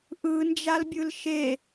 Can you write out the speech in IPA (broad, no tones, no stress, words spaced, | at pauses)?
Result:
ʔɯnd͡ʒalbʲɯl ʃe